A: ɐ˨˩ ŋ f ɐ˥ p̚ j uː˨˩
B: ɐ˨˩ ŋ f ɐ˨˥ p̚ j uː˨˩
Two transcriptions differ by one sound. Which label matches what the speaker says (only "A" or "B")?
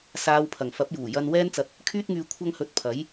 B